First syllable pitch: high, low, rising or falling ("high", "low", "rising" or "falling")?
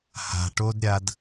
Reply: low